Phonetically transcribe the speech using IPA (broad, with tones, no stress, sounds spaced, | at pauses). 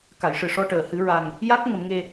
k a˨˩˨ j ʂ ɨ˨˩ ʂ ɔ˧ ʈ əː˨˩˨ h ɨ˨˩˦ ɹ a˨˩ ŋ | j a˦˥ k̚ ŋ ə˨˩˦ m ŋ e˧